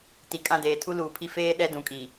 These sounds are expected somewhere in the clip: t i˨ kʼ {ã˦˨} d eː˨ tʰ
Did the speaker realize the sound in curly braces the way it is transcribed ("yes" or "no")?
yes